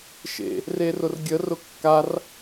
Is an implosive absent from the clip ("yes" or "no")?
yes